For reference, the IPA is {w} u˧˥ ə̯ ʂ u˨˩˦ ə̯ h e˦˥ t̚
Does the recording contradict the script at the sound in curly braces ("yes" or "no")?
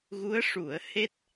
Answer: yes